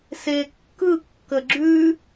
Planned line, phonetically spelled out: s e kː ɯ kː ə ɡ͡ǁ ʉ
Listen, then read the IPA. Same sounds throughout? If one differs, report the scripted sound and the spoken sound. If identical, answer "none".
none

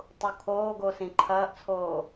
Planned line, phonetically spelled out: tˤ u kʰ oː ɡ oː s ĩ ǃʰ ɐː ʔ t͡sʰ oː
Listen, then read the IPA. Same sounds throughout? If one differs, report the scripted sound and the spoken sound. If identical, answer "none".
none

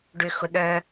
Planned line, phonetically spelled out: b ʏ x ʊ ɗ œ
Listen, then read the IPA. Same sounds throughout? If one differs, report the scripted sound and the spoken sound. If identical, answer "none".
b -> ɖ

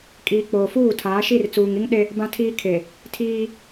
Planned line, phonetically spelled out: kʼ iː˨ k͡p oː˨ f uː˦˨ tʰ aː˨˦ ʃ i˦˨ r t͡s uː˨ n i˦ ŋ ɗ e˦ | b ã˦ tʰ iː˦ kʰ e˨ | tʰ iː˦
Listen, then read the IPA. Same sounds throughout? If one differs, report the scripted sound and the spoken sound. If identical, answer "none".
n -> ŋ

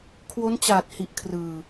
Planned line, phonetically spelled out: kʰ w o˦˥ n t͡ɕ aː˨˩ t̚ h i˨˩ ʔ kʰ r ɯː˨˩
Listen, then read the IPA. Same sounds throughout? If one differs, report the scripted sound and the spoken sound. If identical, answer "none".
none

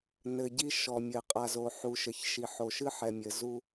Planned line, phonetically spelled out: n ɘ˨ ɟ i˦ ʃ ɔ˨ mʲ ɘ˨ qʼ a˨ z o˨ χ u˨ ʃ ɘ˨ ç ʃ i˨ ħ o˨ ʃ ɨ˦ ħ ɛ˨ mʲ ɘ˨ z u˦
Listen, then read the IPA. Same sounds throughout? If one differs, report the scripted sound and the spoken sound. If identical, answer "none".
χ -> ħ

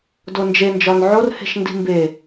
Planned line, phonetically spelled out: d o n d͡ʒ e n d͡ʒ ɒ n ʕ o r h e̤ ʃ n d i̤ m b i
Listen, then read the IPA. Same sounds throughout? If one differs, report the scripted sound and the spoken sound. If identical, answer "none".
i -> e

